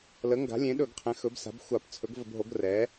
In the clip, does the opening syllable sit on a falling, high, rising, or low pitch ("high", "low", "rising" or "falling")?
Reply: rising